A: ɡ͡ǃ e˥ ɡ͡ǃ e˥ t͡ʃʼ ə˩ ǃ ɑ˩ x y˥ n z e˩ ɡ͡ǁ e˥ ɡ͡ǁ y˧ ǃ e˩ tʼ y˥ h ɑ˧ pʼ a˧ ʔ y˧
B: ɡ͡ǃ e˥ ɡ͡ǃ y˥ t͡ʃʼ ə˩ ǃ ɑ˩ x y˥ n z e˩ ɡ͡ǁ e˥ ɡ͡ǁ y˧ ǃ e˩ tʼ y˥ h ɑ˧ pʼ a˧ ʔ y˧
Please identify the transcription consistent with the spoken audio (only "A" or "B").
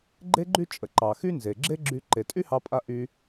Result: B